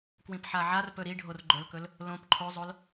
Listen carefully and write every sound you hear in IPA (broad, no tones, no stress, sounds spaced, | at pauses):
k w ĩ p ħ a ʕ a r p ɵ ɾ i ɖʱ o r ɡ͡ǃ ɵ l k ɵ l | l õ p ǃʰ o zˤ o l